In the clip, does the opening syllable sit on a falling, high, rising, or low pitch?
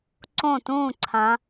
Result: falling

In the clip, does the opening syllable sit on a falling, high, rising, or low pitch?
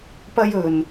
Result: high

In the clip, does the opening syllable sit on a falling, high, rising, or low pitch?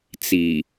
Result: low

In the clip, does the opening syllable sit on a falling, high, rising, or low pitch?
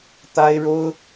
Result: high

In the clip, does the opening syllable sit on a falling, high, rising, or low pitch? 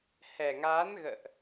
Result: low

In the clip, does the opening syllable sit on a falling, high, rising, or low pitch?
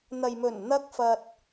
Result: low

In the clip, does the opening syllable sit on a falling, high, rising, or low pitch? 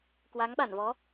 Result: rising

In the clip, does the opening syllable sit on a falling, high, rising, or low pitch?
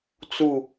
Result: falling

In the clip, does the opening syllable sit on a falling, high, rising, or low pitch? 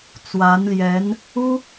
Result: rising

